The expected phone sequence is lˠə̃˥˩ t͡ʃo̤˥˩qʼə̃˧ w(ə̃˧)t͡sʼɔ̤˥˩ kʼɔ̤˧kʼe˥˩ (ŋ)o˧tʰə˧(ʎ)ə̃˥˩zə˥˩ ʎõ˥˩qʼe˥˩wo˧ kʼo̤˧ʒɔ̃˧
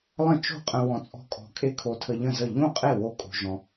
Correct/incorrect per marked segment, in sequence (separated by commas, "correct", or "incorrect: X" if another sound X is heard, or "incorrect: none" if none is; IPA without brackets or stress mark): incorrect: ɔ̃˧, incorrect: kʰ, correct